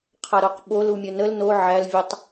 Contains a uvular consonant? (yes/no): yes